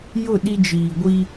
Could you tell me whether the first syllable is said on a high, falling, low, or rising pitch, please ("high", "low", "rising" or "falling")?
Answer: falling